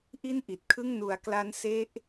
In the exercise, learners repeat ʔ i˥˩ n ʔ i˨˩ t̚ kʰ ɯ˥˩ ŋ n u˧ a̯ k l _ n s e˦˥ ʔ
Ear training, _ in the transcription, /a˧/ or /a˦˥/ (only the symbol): a˦˥